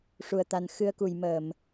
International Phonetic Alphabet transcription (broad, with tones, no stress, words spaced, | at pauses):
ʂu˨˩ə̯t̪a˨˩n xɨ˧ə̯ku˨˩j məː˨˩˨m